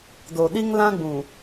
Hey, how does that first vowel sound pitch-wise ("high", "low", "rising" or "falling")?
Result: low